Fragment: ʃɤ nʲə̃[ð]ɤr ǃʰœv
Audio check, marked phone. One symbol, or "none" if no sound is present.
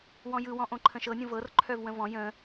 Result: v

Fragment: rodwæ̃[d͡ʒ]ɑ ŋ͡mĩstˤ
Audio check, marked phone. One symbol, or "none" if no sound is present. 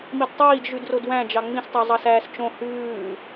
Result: d͡ʒ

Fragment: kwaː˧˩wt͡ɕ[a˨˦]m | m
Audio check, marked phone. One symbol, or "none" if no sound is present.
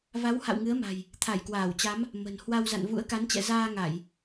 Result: a˨˦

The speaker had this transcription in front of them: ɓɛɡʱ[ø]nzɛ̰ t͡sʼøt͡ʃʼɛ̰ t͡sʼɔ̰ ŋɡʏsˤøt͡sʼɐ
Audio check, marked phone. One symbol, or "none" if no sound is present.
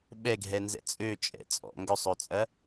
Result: ɛ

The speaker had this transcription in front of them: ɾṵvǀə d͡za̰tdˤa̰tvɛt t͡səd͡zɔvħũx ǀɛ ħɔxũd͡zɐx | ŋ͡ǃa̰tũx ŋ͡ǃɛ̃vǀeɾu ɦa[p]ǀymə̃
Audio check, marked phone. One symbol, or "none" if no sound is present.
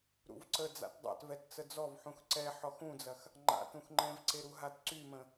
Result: t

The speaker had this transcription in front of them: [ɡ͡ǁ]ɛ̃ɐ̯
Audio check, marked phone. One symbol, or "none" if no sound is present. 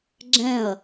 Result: ɡ͡ǁ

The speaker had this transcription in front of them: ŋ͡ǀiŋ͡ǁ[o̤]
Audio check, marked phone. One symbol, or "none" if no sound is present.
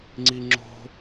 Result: o̤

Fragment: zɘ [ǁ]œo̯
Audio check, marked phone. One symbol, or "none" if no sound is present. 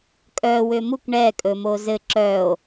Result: ǁ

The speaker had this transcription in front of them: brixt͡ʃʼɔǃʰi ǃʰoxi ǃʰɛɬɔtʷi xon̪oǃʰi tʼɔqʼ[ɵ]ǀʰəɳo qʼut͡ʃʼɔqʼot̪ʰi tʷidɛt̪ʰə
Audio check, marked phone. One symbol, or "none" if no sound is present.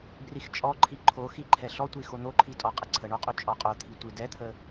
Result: ə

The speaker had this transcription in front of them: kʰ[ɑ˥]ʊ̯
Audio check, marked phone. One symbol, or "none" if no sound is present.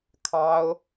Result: ɑ˥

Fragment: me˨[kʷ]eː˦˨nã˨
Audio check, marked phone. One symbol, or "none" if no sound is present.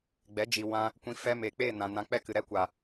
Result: k͡p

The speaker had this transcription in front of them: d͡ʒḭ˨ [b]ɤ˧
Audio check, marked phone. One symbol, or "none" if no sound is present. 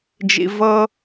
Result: v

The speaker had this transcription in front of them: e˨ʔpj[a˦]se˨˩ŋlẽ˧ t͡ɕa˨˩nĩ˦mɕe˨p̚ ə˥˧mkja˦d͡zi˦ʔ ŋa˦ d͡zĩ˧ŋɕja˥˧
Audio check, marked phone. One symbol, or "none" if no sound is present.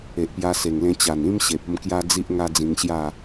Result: a˧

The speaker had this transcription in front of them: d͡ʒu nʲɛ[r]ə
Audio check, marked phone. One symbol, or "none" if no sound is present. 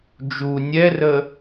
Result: r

